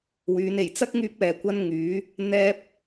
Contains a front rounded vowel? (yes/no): yes